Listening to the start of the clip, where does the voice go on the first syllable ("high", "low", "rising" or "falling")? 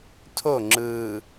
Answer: falling